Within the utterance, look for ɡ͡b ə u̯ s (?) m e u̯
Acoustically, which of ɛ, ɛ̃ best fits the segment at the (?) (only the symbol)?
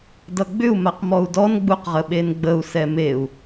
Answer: ɛ